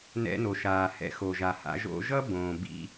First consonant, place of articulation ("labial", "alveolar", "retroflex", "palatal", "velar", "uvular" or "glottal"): alveolar